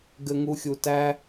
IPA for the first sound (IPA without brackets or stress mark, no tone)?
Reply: ɡ